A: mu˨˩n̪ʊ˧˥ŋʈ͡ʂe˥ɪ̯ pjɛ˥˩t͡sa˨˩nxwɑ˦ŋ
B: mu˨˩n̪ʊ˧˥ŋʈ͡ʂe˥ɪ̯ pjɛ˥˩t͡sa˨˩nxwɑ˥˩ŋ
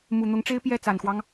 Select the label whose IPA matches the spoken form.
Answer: A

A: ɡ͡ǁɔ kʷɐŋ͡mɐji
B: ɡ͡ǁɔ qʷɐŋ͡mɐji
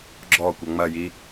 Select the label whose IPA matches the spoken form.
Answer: A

